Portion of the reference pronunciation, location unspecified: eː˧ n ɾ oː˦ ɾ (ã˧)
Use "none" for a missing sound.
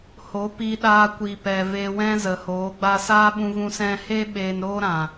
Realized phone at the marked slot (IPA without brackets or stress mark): ã˨